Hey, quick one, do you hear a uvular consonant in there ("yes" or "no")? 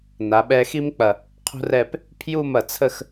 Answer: yes